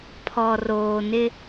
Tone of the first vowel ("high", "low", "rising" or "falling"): low